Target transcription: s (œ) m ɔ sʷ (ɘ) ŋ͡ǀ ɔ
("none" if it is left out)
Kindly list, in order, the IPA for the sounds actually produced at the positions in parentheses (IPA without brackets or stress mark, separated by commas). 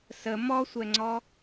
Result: ə, ɛ